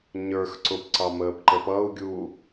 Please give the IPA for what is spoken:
ɲə˞x ǀʊpǀɑ məːpǃəpʌu̯ɡʲu

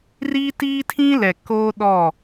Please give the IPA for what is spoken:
riː˦tiː˦tʰĩ˦lɛ˨ koː˦ɗɔ˦˨

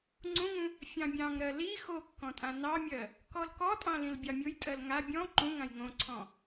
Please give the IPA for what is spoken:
ŋ͡ǀũŋũ | fʲɑ̃bʲɑ̃ŋɾɜ li xokːɔ̃ tʼãnɑmʲɜ | kɔlkɔtʼɑ̃ lĩlbʲɑmʲʊjtʼɜl ŋa bʲɔ̃ ǃũŋãj ŋõǀʰɔ̃

